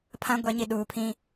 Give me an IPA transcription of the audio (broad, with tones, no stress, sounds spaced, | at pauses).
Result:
pʰ ã˦ ɡʷ ɛ˨˦ ɲ i˨ ɗ uː˨ pʰ ĩ˦